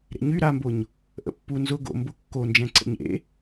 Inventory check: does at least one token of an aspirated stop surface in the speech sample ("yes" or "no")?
no